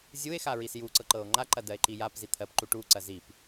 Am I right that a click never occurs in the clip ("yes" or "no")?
no